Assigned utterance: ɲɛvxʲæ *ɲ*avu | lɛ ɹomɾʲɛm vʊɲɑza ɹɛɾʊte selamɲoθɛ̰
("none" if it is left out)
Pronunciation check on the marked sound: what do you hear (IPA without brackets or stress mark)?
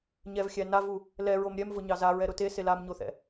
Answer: n